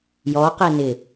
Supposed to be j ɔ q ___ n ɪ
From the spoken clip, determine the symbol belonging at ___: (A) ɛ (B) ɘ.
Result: A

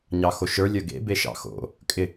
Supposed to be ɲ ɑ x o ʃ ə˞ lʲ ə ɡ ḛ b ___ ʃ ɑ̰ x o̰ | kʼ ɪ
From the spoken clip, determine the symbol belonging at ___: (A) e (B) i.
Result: A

